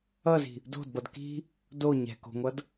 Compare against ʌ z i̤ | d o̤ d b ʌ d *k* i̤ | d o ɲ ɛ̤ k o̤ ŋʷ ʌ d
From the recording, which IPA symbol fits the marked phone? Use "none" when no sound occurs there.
k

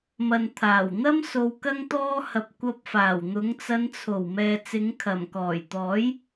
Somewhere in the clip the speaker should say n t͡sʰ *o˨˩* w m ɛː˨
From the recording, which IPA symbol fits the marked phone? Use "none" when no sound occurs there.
o˨˩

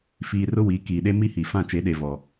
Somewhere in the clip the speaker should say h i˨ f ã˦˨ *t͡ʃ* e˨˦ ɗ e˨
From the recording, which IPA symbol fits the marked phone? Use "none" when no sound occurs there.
t͡ʃ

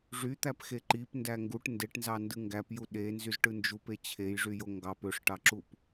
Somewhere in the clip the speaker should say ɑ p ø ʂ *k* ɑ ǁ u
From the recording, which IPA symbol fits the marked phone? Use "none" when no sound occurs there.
ʈ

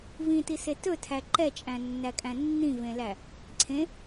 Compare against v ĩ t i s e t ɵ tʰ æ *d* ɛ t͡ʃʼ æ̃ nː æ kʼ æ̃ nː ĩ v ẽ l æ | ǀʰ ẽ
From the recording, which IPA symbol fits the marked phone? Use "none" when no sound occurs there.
ǃ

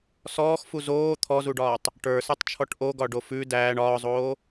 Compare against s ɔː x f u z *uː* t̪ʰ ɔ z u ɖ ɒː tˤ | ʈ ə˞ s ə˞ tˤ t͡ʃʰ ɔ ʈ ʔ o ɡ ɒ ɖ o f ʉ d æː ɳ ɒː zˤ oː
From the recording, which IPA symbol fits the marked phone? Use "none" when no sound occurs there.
oː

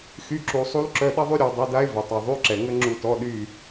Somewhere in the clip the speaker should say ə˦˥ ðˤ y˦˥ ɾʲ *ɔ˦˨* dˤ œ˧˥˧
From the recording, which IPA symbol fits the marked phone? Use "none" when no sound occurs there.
ɔ˦˨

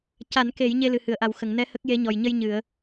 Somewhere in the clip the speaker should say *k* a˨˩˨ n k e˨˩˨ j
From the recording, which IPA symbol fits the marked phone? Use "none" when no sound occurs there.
c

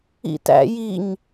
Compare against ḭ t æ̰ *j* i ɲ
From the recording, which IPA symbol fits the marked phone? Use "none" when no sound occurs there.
j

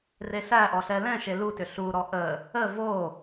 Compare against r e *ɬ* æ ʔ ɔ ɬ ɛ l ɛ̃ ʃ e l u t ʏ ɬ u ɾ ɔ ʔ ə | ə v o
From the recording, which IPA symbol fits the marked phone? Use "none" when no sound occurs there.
ɬ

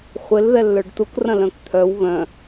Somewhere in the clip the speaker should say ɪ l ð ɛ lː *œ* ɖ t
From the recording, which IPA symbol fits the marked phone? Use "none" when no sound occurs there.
œ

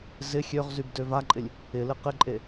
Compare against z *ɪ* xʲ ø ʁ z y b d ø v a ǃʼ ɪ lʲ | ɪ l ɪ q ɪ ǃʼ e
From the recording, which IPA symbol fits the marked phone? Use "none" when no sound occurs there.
ɪ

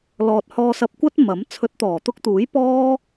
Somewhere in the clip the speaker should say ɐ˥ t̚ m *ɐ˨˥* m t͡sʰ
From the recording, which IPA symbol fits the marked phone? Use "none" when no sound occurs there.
ɐ˨˥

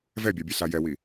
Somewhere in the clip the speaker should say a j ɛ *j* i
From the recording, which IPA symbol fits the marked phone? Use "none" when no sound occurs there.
w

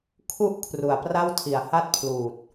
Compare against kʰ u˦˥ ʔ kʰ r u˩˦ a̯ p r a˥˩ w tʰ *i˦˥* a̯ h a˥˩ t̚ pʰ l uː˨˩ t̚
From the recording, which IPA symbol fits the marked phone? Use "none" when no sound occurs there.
i˩˦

